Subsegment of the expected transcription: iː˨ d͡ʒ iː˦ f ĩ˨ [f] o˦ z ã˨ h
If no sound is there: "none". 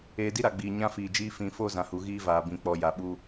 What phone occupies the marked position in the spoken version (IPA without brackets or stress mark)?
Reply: f